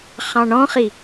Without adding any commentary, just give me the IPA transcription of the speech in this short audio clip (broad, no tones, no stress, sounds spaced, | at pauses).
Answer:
χ ɑ̃ ɳ ɔ̃ χ i